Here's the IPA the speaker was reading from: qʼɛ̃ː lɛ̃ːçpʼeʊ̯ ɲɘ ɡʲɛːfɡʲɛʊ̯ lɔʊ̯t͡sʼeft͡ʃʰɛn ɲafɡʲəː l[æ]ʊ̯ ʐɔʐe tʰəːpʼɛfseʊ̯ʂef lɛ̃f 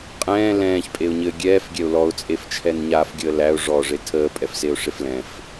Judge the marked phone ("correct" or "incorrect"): correct